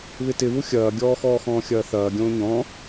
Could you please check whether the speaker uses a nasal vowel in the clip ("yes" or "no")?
yes